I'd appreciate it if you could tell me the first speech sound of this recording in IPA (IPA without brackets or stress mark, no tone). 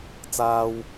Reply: t͡s